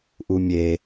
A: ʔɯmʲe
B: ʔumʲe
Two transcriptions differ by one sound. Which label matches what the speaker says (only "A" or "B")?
B